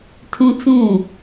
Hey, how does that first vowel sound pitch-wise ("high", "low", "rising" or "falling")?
high